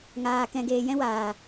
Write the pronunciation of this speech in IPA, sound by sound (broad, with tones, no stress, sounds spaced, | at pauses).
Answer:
ŋ aː˧ k ɛ̃˧ ɡ eː˧ j ɛ̃˦ w aː˨